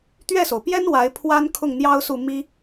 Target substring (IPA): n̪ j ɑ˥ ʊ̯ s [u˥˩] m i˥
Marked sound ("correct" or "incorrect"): correct